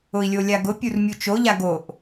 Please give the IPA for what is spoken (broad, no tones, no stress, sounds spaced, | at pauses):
ʊ i̯ lʲ o lʲ a ɡ ʊ pʲ u r mʲ u t͡ʃ o ʎ a ɡ o ʔ